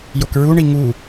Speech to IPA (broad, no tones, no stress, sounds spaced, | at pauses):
j o k ɹ u ɳ i ŋ u